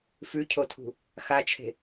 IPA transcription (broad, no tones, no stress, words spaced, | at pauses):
fʉcʰotʰṳ | xat͡ʃʰe̤